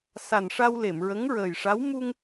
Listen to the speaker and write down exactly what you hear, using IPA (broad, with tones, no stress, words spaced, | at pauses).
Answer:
sa˨˩nʂa˧w le˨˩˨mɹə˧˥ŋɹəː˨˩jʂa˧˥w mu˧ŋ